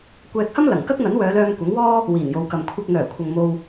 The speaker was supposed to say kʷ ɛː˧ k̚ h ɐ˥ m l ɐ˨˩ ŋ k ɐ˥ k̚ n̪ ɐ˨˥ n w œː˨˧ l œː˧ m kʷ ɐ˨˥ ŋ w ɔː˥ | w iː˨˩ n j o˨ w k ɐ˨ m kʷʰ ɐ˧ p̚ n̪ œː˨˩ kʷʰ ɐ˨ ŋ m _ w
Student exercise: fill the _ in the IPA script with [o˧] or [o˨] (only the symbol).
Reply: o˧